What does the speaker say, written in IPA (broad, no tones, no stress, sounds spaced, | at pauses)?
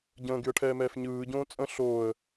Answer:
ɟ ə̃ː ɡ y ə̯ ʈʰ ɛː m ɛː f ɲ ɯː ɟ õː t͡sʼ ə̃ ɬ oː ə̯